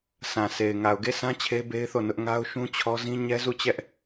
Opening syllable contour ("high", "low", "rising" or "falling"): low